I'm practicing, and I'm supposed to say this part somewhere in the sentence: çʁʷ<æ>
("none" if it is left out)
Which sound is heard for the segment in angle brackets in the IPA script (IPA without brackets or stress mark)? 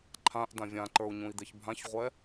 ɛ